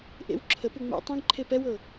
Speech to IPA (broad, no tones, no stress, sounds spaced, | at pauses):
ʔ ḛ w ǁʰ ə p u ŋ͡m ɛ̰ tˤ ẽ ɡ ǃʰ e p ɛ w ɤ